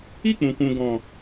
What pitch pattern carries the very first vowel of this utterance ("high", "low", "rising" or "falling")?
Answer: falling